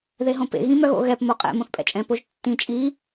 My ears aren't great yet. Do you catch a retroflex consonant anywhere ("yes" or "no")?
no